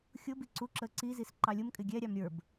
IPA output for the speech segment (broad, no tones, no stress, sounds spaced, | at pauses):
xʲ ʊ b i ǀ u ǁ ə ǀ i z i s ǃ ɑ lʲ ʊ m kʼ ɪ ɡʲ ɛ ɾʲ ɑ m ɾʲ ə˞ b